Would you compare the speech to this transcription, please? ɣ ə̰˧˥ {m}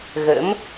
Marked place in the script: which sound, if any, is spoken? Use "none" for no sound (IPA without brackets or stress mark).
m